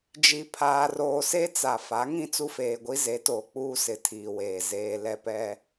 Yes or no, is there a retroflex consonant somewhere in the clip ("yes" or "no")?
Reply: no